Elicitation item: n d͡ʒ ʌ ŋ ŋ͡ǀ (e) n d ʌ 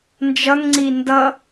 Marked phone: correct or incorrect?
incorrect